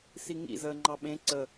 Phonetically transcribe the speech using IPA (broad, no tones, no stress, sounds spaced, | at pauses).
s i ŋ ḭ z əː ŋ͡ǃ ɑ ɓ ẽ ǀ ə